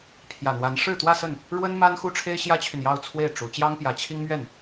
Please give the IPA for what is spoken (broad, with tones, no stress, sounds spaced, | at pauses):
pʰ j ä˨˩ n̪ w a˧˥ n ʂ ɻ̩˥˧ t̪ w ä˥˧ s ə˥˩ n | ɻ w ə˥ n m a˥ n x u˥ ʈ͡ʂʰ e˥ ɪ̯ ɕ j ä˥ t͡ɕʰ y˨ n j ɑ˥˧ ʊ̯ t͡sʰ w e˥˩ ɪ̯ ʈ͡ʂ u˧˥ t͡ɕ j ɑ˥ ŋ p j ä˧˥ t͡ɕʰ i˥ ŋ m ɥ ɛ˥˩ n